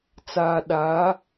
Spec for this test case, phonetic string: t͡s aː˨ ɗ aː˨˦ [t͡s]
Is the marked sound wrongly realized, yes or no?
yes